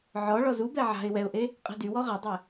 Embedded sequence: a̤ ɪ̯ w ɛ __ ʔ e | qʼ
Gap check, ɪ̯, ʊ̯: ʊ̯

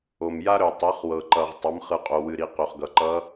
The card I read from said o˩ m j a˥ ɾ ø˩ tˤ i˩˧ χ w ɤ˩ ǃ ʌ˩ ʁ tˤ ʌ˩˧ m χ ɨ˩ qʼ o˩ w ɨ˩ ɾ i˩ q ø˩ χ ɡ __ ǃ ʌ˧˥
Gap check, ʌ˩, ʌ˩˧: ʌ˩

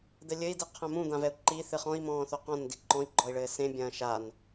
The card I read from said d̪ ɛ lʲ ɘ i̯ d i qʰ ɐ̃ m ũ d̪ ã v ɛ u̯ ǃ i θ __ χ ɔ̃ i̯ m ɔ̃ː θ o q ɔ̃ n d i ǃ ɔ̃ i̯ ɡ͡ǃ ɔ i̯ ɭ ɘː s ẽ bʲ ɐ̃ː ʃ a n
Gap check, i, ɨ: ɨ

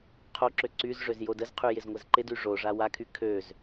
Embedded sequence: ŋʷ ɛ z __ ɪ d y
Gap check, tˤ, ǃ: ǃ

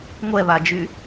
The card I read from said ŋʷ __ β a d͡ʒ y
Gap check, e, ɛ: ɛ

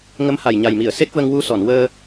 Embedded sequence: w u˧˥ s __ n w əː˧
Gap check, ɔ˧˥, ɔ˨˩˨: ɔ˨˩˨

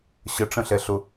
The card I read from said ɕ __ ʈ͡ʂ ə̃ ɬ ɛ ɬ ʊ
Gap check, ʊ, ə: ə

